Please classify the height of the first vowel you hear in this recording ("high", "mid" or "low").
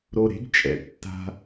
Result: mid